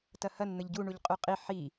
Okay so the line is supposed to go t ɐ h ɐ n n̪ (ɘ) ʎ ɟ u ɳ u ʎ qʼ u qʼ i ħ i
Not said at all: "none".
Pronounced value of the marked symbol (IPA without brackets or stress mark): ɘ